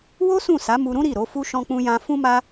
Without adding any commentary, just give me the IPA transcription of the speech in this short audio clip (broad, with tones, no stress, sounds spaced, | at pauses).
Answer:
w o˦ s ũ˦˨ s a˨˦ m u˧ ɾ ũ˦ ɾ i˦˨ ɾ o˨˦ f u˦ ʃ ɔ̃˧ k͡p ũ˧ j ã˧ f ũ˦ m a˦